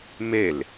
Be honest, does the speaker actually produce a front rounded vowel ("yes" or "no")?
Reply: no